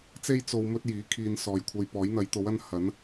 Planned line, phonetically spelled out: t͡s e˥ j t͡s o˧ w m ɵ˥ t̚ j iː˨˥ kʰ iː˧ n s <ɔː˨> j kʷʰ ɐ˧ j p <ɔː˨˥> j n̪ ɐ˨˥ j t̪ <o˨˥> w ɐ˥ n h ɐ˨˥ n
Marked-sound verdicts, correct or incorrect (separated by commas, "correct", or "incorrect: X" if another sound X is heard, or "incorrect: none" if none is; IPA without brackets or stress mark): correct, correct, correct